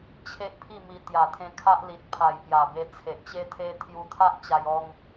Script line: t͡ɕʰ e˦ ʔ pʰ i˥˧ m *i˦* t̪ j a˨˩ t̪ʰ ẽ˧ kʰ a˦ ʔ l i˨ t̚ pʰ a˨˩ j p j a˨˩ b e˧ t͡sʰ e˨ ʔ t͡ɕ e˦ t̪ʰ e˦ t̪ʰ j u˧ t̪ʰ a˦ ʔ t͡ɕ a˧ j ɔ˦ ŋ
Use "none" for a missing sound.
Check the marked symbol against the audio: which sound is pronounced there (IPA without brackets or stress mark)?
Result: i˧